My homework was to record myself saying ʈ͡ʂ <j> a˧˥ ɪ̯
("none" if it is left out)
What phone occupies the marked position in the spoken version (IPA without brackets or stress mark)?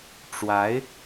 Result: w